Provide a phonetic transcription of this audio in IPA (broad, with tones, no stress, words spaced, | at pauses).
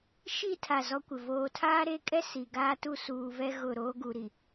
ʃi˦˨ tʰa˦˨zɔ˦kʷɪ˨ voː˨tʰaː˦ ɾe˦kʼɛ˦ si˨ ɡaː˦tu˦suː˨vɛ˦ ɣʊ˦˨ ɾoː˦ɡu˨ɾi˨